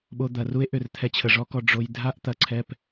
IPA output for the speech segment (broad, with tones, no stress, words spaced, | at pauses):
ɓo˧d̪ɐ˨ru˦e̯ʔʏ˨r t̪ʰɛ˧t͡ɕʰə˨ʐɔ˦kɔ˧ ɖ͡ʐo˧j dʱa˦ʔt̪ɐ˨ ǀʰɛ˦p